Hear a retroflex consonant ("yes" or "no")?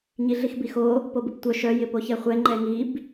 no